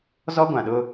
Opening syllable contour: high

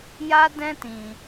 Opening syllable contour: high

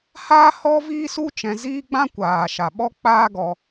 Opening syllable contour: high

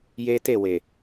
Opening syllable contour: high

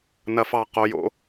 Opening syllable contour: low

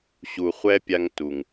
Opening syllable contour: low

